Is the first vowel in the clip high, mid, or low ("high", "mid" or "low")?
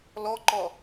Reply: mid